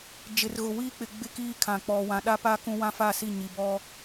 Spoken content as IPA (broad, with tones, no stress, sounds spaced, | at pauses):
d͡ʒ ɪ˨ r ɣ ʊ˨ w iː˦ k͡p ɪ˨ ɡ͡b ɪ˦ k iː˦ kʰ ã˨ k͡p ɔ˨ w ã˨ ɗ a˦ p a˦ k ũ˦ w ã˦ f a˦˨ s i˦˨ ɲ i˨ b ɔ˦